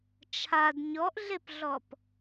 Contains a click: no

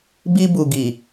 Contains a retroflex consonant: no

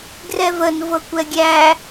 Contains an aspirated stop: no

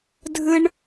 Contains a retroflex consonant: yes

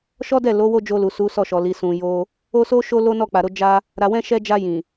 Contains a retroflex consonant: no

